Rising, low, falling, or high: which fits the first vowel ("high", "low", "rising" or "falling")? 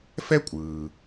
high